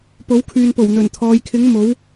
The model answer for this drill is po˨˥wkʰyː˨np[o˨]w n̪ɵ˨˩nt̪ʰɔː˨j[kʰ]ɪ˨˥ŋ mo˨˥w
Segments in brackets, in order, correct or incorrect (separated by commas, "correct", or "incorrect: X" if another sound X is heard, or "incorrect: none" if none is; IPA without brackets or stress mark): incorrect: o˨˩, correct